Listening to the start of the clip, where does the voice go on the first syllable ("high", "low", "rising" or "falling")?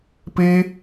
high